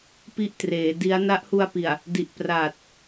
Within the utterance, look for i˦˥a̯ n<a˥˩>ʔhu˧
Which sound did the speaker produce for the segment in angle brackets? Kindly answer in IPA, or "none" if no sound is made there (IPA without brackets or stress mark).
a˦˥